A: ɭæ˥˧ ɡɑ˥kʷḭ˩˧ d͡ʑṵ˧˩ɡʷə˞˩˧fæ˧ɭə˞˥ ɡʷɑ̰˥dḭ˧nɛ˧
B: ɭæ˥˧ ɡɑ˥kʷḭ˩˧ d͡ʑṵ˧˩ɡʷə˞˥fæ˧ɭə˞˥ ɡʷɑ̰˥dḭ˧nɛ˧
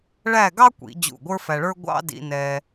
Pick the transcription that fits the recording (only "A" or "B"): B